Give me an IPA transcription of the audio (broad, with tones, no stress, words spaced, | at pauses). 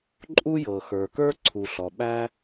ǃʼu˥jɤ˩xə˞˩ kə˞˥ǀʰu˩ɬɔ˩ ɓæ˥